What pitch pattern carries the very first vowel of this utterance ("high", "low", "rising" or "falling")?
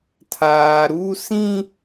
low